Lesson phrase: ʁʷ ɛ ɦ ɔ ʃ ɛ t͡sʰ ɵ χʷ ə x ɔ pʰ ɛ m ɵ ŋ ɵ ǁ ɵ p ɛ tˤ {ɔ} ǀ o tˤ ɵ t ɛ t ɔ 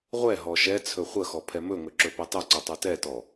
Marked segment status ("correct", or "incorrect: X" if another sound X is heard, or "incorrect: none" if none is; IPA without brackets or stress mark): incorrect: ɵ